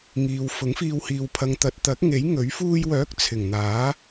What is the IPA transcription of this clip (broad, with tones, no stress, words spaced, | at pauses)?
ŋiː˨wfʊ˨˥ŋfiː˧w hiː˨wpʰɐ˨ŋt̪ɐ˨t̚ t̪ɐ˨˥k̚ŋe˨˥j ŋɵ˨˥ɥ fuː˧jwœː˨˥k̚ t͡sʰɪ˨˩ŋn̪aː˨˥